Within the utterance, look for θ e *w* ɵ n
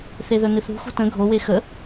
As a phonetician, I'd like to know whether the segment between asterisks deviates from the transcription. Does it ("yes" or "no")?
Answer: yes